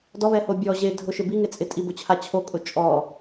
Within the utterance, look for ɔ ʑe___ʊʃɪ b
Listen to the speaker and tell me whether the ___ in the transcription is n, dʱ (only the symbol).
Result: dʱ